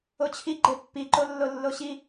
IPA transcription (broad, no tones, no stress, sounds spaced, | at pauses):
o t͡ɕʰ i ɡ͡ǃ e pː i ǃ o lː o lː o ɕ i